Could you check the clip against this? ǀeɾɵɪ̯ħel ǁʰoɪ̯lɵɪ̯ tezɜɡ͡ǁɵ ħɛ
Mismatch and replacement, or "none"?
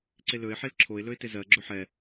ɾ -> l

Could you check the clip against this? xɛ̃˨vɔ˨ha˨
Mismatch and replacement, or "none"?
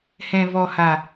x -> h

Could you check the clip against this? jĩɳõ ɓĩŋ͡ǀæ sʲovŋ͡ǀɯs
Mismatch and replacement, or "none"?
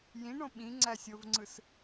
none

